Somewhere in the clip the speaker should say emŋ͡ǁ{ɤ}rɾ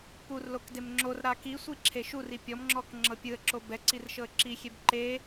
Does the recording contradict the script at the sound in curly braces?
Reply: yes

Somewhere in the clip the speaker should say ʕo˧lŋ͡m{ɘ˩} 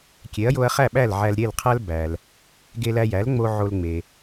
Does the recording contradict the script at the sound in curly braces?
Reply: yes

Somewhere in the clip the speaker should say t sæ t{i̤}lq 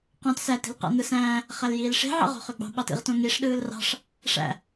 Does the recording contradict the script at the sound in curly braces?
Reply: no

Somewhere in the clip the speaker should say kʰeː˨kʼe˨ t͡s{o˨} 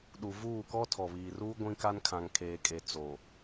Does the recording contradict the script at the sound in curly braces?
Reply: no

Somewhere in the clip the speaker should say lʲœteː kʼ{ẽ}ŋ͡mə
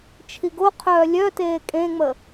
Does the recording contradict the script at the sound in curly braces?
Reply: no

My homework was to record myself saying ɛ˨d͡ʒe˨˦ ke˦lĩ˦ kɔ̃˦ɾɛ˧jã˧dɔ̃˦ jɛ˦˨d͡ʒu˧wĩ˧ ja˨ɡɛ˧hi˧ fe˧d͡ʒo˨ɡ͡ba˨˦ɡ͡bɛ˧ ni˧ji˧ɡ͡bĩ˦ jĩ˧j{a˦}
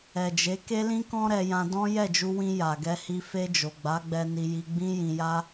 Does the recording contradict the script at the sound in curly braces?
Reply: no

